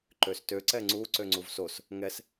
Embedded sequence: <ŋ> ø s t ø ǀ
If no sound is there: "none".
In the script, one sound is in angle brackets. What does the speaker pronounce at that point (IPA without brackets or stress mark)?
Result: ǃ